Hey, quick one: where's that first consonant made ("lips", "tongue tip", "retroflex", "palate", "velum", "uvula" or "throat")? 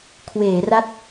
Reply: velum